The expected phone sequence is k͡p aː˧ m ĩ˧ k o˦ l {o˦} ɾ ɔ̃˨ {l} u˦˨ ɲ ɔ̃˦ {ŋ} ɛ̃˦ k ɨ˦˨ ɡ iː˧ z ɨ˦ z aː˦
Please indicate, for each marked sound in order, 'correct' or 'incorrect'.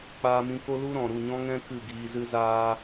incorrect, incorrect, correct

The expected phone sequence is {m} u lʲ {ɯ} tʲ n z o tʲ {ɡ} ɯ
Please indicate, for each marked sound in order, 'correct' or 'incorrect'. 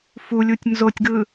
incorrect, incorrect, correct

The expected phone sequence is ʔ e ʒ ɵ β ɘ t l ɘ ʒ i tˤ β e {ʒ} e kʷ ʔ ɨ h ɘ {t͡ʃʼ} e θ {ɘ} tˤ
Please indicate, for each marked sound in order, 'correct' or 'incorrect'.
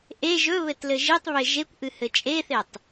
correct, correct, incorrect

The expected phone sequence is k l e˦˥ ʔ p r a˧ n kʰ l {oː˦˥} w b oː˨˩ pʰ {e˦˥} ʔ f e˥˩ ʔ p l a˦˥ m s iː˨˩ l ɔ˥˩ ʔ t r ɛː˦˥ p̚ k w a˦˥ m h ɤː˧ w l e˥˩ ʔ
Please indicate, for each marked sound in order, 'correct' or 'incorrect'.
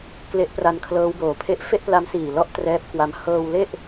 incorrect, correct

